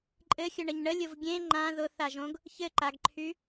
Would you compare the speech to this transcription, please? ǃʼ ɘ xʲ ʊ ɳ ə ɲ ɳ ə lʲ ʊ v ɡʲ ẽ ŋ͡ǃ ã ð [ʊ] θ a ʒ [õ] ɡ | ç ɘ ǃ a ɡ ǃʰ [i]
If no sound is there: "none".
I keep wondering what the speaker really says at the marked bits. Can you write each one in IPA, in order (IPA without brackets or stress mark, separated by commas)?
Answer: ʊ, õ, y